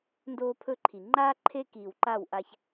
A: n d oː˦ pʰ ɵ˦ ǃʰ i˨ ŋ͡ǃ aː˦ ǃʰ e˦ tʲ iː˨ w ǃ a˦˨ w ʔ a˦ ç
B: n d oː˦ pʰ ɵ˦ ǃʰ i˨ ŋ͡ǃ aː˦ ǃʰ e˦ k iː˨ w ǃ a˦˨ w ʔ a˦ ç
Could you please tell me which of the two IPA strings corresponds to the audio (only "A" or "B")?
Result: B